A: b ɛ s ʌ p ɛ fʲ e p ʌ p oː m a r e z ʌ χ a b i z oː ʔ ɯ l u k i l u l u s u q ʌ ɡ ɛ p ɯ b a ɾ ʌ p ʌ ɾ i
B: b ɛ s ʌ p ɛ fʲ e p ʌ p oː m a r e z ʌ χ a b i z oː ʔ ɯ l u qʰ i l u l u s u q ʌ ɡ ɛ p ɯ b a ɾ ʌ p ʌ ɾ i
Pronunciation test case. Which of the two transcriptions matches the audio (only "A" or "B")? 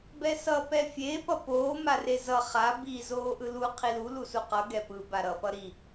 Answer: B